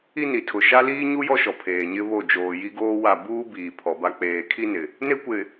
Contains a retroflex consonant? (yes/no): no